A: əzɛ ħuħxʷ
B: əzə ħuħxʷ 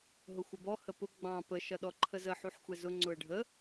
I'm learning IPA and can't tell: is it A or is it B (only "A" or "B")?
B